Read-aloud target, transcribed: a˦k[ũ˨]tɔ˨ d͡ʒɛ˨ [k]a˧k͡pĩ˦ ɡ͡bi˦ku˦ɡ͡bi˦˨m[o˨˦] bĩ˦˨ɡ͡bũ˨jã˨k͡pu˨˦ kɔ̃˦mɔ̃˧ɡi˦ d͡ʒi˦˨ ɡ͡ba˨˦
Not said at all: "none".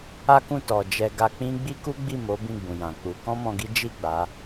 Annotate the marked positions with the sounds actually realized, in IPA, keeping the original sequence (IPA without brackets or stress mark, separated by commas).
ũ˦˨, ɡ, o˨˦